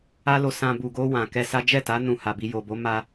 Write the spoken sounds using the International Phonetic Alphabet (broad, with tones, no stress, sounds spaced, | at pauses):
a˦ l o˧ s ã˧ b u˨ ɡ o˧ w ã˨ k ɛ˧ s a˦ d͡ʒ ɛ˦˨ t a˨˦ n ũ˧ h a˨ b i˧ j o˨ b o˨˦ m a˧